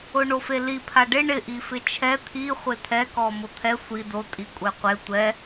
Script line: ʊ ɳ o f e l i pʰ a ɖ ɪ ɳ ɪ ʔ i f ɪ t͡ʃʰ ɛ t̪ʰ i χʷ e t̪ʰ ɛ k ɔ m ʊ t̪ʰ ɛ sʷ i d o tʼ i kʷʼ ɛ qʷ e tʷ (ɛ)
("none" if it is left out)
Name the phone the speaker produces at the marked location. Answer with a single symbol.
ɛ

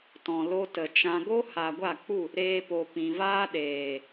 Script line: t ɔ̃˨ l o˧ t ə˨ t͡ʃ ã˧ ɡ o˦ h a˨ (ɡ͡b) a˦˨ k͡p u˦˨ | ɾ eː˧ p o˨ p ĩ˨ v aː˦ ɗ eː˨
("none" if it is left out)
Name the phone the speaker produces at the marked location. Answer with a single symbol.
ɡʷ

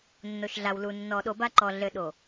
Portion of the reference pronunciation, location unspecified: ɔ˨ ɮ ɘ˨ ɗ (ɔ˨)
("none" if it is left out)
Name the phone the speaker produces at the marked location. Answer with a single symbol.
o˨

